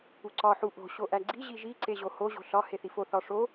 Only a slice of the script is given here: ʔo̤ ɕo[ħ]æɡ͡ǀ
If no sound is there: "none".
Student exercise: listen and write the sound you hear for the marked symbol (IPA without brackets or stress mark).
ʔ